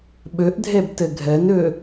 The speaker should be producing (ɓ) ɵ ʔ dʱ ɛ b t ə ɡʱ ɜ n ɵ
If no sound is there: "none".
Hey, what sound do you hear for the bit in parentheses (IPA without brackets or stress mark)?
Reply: ɓ